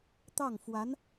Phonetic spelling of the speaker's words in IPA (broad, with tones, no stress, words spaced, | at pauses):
t̪ɑ˥˩ŋfwa˧˥n